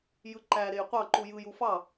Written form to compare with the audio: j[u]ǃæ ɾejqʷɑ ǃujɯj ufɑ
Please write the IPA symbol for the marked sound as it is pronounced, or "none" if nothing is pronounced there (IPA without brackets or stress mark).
ɯ